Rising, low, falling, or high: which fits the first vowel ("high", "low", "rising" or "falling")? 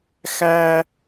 high